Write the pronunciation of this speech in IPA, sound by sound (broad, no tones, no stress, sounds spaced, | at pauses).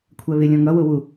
kʷʰ æ β ɪ lʲ ɔ̃ ŋ ʌ w ʊ w u